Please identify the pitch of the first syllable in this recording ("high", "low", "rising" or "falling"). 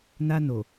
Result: high